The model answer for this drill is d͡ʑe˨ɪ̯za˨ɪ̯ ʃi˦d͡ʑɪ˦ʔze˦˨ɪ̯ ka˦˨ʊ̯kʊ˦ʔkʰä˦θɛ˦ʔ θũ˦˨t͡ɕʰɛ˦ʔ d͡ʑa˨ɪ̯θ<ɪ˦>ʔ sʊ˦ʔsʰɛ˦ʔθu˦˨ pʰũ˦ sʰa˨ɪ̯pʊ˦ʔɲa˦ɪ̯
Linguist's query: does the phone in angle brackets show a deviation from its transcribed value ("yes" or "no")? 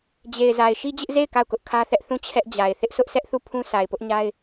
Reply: no